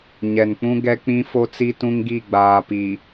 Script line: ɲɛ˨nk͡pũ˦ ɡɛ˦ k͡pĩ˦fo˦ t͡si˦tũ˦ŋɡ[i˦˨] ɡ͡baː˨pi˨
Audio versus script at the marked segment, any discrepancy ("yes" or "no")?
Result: no